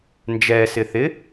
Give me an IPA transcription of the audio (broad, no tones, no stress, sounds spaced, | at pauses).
n d͡ʒ ɛ s ɪ θ ɪ